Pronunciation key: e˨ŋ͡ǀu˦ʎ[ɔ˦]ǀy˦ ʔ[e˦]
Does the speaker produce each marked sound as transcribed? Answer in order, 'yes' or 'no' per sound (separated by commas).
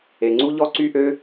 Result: yes, no